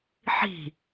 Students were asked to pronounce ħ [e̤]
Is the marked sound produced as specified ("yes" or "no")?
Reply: no